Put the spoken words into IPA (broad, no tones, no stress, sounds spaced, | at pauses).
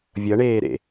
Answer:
vʲ ʌ ɳ eː ɾ ḛ